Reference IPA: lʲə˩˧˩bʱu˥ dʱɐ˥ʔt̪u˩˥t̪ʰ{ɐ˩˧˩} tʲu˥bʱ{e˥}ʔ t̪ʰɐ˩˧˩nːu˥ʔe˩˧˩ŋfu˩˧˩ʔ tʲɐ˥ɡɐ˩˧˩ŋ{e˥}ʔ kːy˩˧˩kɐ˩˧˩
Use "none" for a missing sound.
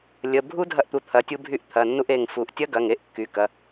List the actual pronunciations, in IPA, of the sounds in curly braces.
ɐ˩˧˩, y˥, e˥

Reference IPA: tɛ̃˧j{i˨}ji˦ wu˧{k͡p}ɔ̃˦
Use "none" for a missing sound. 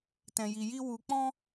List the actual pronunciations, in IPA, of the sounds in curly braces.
i˧, k͡p

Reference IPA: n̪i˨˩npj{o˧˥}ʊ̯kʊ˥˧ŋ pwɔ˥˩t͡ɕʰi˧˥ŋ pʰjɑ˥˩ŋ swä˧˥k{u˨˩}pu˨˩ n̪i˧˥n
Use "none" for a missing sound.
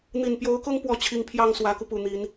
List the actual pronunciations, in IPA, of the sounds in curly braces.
o˧˥, u˧

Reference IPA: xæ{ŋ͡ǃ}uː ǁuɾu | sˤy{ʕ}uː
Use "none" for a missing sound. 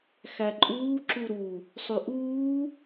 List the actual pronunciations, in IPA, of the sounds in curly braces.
ǃʼ, ʔ

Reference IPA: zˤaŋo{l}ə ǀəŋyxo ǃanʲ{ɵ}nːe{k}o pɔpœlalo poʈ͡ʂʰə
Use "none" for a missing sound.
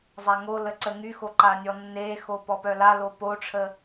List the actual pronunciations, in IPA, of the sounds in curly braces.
l, ɔ, x

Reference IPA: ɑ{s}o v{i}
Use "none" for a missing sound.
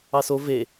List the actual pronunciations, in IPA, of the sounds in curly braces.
s, e

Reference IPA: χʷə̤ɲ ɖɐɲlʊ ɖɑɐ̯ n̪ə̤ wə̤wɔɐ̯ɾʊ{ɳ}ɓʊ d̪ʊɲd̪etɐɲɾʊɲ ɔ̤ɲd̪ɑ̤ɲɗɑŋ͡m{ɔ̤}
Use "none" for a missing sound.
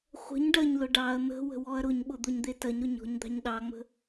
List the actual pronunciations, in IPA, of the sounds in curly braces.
ɲ, ə̤

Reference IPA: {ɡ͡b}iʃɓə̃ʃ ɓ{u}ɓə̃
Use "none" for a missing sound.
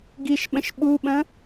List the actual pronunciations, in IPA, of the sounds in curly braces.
ɡ, u

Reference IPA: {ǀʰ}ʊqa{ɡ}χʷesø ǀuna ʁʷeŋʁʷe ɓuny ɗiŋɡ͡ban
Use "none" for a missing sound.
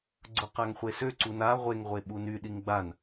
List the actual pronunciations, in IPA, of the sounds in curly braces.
ɡ͡ǀ, ŋ

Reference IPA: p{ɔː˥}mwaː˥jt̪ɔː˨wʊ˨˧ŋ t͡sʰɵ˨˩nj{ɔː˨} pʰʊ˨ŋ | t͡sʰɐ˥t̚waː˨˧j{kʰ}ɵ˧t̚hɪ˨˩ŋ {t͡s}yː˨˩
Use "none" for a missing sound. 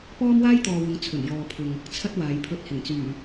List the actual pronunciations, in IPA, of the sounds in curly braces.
ɔː˥, ɔː˨, pʰ, t͡s

